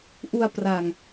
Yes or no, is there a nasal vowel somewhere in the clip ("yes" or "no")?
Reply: no